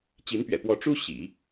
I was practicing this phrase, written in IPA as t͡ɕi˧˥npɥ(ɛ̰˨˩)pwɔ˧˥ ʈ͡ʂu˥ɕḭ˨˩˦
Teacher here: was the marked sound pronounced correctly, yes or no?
yes